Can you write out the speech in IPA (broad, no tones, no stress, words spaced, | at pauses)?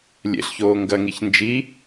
lʲḛɬçoː ŋɡɐŋiç nd͡ʒi